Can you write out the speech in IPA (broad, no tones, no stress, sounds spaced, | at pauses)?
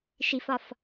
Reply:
ʃ i f ɒ f